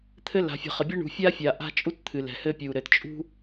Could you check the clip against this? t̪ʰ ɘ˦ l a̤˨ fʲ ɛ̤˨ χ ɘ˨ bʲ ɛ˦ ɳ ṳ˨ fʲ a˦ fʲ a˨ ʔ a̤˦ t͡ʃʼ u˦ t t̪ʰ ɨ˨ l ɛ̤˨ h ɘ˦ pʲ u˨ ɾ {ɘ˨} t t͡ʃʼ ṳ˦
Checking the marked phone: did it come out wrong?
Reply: no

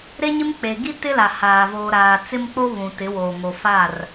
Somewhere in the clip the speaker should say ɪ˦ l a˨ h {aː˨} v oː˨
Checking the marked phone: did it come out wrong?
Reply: no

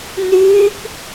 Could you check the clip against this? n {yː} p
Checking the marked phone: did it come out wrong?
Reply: no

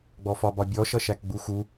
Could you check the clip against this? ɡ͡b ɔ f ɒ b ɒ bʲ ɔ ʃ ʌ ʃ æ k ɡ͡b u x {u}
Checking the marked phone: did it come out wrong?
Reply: no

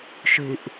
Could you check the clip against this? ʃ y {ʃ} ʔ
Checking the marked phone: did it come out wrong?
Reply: yes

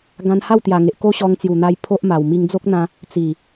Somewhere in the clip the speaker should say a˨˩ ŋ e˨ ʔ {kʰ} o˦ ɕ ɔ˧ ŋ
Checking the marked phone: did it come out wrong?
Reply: yes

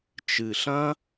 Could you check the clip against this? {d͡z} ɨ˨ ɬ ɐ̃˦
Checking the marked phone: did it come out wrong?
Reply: yes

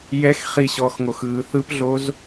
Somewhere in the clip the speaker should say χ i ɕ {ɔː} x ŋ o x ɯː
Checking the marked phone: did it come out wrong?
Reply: no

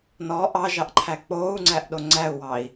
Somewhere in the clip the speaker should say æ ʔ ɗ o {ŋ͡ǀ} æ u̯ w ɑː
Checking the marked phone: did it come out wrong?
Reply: no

